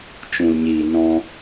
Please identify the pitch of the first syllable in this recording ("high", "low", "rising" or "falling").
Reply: low